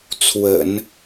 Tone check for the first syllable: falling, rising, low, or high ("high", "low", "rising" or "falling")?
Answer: low